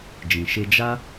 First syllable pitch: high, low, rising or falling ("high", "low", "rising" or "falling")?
low